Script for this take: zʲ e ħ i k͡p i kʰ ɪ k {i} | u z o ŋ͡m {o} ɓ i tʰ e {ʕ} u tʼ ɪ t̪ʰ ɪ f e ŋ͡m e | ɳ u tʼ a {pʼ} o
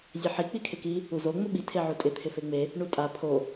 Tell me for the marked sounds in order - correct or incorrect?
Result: correct, incorrect, correct, incorrect

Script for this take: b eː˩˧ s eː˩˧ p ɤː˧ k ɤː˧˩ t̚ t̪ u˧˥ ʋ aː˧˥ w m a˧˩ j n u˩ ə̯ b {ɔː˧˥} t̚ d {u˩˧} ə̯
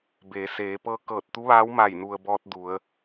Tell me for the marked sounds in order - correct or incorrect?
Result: incorrect, correct

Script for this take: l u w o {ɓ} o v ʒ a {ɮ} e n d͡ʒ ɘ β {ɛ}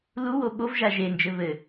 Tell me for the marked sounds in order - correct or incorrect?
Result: correct, incorrect, incorrect

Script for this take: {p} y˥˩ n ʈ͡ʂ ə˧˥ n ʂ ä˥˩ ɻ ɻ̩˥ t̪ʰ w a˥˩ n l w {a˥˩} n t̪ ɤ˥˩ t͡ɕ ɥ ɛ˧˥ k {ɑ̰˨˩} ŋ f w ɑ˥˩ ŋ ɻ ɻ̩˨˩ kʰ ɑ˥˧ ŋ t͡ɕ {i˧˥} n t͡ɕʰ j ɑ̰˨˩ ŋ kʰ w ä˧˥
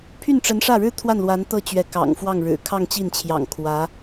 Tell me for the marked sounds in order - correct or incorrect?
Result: incorrect, incorrect, correct, incorrect

